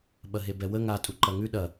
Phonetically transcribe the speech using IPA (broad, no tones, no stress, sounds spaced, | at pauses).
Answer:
ɓ ɐ ɦ e b ɛ w ə ŋ a tʼ u ǃ ɐ ŋ ʉ ɗ ɐ